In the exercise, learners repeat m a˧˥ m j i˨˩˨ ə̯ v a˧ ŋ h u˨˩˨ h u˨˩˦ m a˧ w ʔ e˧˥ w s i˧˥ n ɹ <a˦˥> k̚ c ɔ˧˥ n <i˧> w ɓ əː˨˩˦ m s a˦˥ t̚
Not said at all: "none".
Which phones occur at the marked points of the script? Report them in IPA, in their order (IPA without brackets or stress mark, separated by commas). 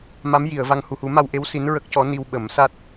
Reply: ə˦˥, i˧